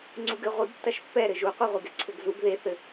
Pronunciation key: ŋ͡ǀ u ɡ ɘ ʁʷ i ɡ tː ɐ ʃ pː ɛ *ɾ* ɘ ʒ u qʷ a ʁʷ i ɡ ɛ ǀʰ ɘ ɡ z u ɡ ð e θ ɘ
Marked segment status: correct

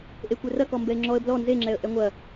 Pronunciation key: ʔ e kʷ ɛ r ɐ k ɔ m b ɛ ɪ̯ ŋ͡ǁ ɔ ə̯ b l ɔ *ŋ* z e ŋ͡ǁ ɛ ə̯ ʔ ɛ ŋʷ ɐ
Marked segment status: incorrect: n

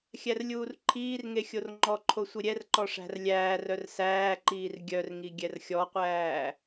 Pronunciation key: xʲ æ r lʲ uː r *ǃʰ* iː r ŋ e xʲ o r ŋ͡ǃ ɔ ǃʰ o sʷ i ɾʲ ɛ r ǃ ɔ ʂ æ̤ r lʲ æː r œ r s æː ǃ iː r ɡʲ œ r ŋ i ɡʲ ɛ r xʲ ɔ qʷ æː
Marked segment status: correct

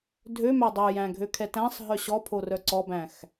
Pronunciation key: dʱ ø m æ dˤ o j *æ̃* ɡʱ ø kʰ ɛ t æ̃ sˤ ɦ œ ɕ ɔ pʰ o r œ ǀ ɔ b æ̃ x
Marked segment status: correct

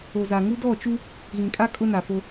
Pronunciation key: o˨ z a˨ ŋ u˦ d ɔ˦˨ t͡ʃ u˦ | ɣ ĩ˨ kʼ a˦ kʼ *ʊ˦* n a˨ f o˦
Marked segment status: correct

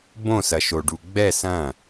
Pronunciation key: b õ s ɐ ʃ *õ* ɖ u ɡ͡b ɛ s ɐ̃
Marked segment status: incorrect: o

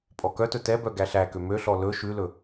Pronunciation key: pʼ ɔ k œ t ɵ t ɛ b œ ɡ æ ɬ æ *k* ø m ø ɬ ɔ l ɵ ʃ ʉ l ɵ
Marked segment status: correct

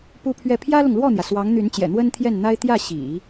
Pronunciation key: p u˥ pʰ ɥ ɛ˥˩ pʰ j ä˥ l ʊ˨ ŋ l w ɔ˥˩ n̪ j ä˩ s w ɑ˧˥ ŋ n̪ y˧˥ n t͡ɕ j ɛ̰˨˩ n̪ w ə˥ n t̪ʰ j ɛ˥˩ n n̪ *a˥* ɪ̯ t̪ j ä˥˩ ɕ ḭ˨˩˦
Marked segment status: correct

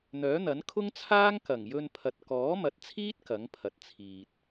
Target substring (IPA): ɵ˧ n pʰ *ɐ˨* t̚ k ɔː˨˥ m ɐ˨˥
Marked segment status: correct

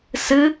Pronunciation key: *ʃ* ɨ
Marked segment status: incorrect: s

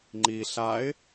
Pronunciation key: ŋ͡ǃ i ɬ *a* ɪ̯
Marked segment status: correct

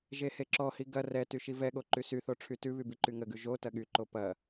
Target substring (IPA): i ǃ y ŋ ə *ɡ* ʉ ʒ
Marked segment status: correct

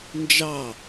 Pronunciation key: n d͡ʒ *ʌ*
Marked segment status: incorrect: ɑ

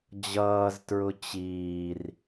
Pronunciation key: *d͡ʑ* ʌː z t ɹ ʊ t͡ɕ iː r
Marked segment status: correct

